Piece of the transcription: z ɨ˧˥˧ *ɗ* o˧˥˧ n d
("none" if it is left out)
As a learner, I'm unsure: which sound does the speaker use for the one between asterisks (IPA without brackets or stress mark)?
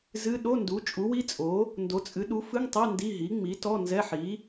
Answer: ɗ